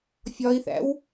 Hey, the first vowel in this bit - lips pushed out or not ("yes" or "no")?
yes